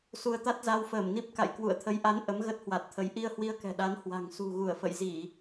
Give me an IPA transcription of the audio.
s u˧ ə̯ t̪ a˦˥ t̚ z a˧ w f əː˧˩ m n i˦˥ p̚ k a̰˧˨ j k w ṵ˧˨ ə̯ t̪ʰ ə˨˦ j ʔ a˨˦ n ʔ ə˨˦ m ɣ ə˦˥ t̚ h w a˨˩ t̚ t̪ʰ ə˨˦ j ʔ i˧ ə̯ h w i˧ ə̯ k ɛ̤˨˩ ɗ a˨˦ n h w a̤˨˩ ŋ s ṳ˨˩ ɣ u˧˩ ə̯ f ə̰˧˨ j z i˧˩˨

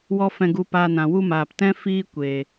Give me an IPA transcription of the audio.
w ɔ˦ f ɛ̃˧ ɡ u˧ p aː˧ n ã˨ w u˦ m aː˨ p t ɛ̃˦ f iː˦ kʷ e˨

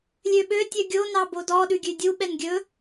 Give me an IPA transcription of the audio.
lʲ ø ɓ ø tʲ œ ɡʲ o n ɑ b o d ɔ ɗ ʉ ɡʲ ʉ dʲ u ɓ ɛ n ɡʲ ɵ

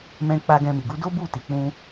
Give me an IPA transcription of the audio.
m ɛ̃˧ k͡p a˧ ɡ ɛ̃˧ m i˨ ɡ u˨˦ d o˦ b u˦˨ t i˨ k͡p ũ˧

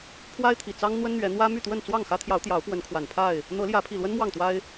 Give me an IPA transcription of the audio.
pʰ w a˦ ɪ̯ t̪ʰ i˨˩ t͡s ɑ˦ ŋ n̪ w ə˦ n n̪ ɥ ɛ˨˦ n̪ w ä˦ m y˥˨ t̪ w ə˥˨ n t͡s w ɑ˥˨ ŋ x ä˦ t̪ʰ j ɑ˨˦ ʊ̯ t̪ j ɑ˨˦ ʊ̯ p w ə˨˦ n kʰ w a˨˩ n pʰ a˥˨ ɪ̯ | n̪ ɤ˨˦ l j ä˨˦ pʰ i˨˩ l w ə˦ n m w ɑ˥˨ ŋ t̪ w a˦ ɪ̯

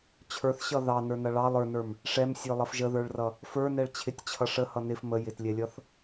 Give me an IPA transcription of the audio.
t͡ɕʰ ə˞ θ ɕ ʌ ð ɑ n ə˞ n ʌ ɭ ɑ lˠ ə˞ n ə˞ m | ʂ ɛ m sʲ ə˞ lˠ ʌ f ʒ ə ð ə˞ ɭ r ʌ | f ə˞ n ɛ ɭ t͡ɕʰ ɪ tʲ t͡ɕʰ ʌ ʂ ə h ʌ n ɪ f m ə j ɪ t lʲ ɛ lʲ ʌ θ

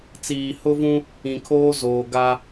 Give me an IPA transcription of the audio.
t͡s iː˨ h ʊ˦ v ũ˦ | ĩ˨ kʰ oː˦ z oː˨ ɡ a˦

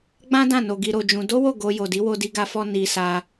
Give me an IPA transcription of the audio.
ɡ͡b ã˦ d ã˦˨ n o˧ ɡ i˧ ɾ o˧ d͡ʒ ũ˧ d o˦ w o˦˨ ɡ o˧ j o˨ d i˨˦ w o˧ d i˧ ɡ a˧ f ɔ˧ n i˧ s a˧

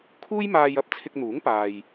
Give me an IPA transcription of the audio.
kʰ uː˥ j m aː˧ j ɐ˥ p̚ t͡sʰ ɪ˧ k̚ n̪ uː˨˥ ŋ p aː˨ j

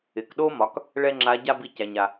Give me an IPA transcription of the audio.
ɪ˩ k ɗ o˥ m ɒ˩˧ k | ɭ ɛ˥ ŋ͡ǁ a˧˥ ɟ a˥ b i˧ c æ˩ ɲ a˩

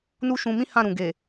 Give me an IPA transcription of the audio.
n u˦ ʃ ũ˧ m ĩ˦ h ã˦˨ ɾ ũ˨ ɡ e˨

